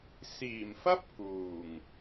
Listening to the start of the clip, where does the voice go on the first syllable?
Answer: low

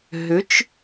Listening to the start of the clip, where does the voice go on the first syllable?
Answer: rising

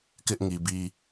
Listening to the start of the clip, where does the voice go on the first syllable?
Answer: high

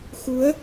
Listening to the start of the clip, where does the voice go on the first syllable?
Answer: rising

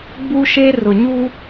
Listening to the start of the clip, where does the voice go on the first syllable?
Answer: high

